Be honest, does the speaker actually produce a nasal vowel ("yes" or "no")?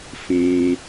yes